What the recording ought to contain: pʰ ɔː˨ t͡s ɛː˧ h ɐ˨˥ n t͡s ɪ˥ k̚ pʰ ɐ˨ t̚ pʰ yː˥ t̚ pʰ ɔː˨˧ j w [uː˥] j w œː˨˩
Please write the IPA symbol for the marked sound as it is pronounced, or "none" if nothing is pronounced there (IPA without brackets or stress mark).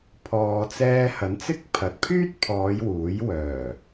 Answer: uː˨˥